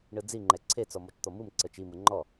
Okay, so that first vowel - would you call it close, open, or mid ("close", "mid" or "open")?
close